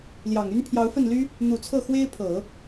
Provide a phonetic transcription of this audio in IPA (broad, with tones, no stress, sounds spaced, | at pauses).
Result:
l j ɑ˨˩ ŋ y˥ n pʰ j ɑ˧˥ ʊ̯ f ə˥˩ n l y˥ | n̪ u˨˩ t͡sʰ ɤ˥˩ x w e˥ ɪ̯ pʰ ɤ˨˩˦